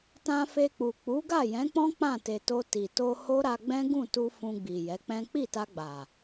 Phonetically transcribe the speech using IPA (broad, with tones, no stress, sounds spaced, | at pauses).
t ã˧ f e˧ k͡p u˨ k͡p u˨˦ ɡ a˦˨ j ɛ̃˨˦ k͡p ɔ̃˦ k͡p ã˦˨ t e˨ t o˧ t i˨ t o˧ h o˦ ɾ a˧ ɡ͡b ɛ̃˦ ɡ ũ˦˨ t u˧ f ũ˧ ɡ͡b i˨ j ɛ˨˦ k͡p ɛ̃˦ k͡p i˦˨ t a˧ ɡ͡b a˨